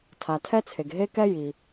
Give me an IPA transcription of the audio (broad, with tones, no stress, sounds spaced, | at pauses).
tʰ a˩ tʰ ɛ˥ t͡sʰ e˩ ɡ ɦ e˥ k ɛ˥ j i˩